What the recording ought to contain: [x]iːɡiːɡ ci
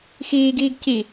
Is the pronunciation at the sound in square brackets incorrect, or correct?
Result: correct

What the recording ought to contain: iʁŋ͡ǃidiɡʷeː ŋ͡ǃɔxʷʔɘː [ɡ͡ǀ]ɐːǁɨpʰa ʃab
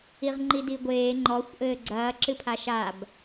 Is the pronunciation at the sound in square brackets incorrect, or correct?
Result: correct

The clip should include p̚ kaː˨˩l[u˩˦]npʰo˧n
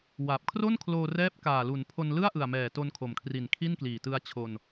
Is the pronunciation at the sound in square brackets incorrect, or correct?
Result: correct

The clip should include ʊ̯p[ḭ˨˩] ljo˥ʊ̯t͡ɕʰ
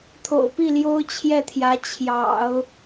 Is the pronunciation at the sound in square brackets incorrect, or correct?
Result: incorrect: i˥˩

